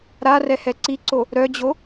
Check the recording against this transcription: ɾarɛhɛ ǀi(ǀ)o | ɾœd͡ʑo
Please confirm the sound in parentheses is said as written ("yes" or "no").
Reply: yes